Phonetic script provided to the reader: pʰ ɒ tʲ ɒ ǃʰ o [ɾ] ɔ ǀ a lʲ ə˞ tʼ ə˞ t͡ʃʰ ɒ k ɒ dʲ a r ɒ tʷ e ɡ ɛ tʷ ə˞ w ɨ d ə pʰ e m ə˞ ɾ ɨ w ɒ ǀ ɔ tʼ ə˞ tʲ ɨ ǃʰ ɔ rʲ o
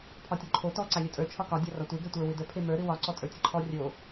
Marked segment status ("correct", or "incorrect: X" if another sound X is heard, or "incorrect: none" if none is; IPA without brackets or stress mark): incorrect: t